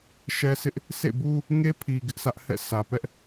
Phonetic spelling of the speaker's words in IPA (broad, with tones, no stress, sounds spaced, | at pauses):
ʃ ɛ˦ sʰ ɪ˦ ʔ | s ḛ˦˨ b u˦ | ŋ e˦ pʰ i˨ ɡ ɪ˦ ʔ sʰ ä˦ ʔ h ɛ̰˦˨ s ä˨ p ɛ˦ ʔ